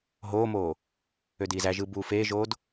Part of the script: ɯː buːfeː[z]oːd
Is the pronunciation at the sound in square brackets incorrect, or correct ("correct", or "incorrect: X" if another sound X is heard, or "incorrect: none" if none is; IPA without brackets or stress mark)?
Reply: incorrect: ʒ